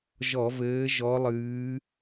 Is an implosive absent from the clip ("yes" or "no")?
yes